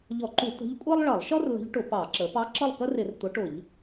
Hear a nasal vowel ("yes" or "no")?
no